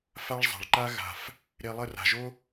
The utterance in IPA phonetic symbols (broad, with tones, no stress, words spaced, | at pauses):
fa˦ɭzˤa̤˨ɭǃa˦ ɣa̤˨f | ɾe˧lˠə˦˨ra̤˨ʒo˦